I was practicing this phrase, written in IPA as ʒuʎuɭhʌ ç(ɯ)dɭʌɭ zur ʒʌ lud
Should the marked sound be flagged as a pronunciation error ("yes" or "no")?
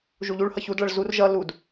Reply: yes